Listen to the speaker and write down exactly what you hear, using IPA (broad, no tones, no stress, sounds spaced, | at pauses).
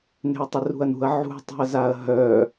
n e̤ ɐ̯ tˤ ə r ṳ ɐ̯ n ṳ ɐ̯ ʕ ṳ tˤ ṳ ɐ̯ z a ɐ̯ ɦ œ